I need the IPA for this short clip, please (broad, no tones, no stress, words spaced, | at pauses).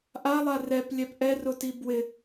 ʔalˠa rɛplʲɛp ʔɛrʊti bwɪ